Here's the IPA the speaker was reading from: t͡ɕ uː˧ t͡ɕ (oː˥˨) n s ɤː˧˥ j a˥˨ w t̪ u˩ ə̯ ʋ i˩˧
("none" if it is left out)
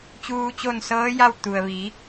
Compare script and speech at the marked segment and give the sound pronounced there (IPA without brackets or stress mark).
o˥˨